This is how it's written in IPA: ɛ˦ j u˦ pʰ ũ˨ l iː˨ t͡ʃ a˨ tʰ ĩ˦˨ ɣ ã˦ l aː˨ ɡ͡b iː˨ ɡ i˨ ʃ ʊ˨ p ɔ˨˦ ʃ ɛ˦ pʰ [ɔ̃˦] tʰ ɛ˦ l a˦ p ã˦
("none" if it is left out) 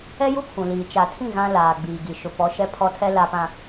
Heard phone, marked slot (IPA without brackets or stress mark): ɔ˦